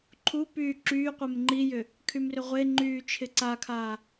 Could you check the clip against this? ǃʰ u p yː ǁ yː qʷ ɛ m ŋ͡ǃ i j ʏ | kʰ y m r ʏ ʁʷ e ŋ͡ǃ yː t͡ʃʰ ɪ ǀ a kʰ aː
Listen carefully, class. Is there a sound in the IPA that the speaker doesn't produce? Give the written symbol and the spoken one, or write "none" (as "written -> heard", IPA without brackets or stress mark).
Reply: none